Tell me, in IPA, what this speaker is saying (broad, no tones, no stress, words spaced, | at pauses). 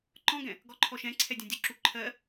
ǃɔ̃ɡɛ̃ | ɡɔǃʰɔʃɛ̃ǀʰɛ dʲãdʲu ǁuǃʰɜ